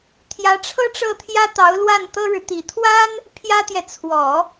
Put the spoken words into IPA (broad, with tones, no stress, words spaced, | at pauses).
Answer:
t̪ʰjä˧˥ʈ͡ʂʰɤ˥ʈ͡ʂɤ˥˩t̪ʰjä˥ t̪ɑ˧˥ʊ̯lwa˥˩nt̪ɤ˥ɻɻ̩˨ t̪i˨˩t̪ʰwa˥n | pʰjä˥t̪jɛ˨ t͡sʰwɔ˨˩˦